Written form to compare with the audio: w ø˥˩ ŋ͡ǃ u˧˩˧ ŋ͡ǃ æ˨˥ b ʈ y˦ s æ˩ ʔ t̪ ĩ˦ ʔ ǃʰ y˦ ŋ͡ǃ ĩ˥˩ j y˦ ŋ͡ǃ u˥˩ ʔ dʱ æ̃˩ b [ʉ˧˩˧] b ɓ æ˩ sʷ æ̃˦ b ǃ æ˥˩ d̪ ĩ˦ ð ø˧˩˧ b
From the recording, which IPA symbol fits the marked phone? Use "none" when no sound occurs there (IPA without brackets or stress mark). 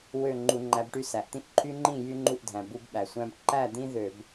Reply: u˧˩˧